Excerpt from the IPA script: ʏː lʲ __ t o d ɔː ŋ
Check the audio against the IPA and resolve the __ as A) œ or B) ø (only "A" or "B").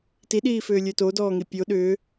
B